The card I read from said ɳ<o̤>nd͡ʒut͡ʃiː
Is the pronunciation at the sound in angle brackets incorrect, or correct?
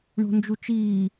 correct